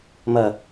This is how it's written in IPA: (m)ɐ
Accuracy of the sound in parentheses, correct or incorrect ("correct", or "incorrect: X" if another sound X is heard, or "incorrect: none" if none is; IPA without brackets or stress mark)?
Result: correct